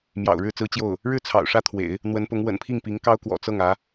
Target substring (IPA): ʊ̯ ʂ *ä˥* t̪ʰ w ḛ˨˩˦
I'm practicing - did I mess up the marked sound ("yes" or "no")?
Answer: no